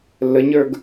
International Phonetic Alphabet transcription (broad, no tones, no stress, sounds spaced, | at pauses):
lː ə ɲ ə˞ ɡ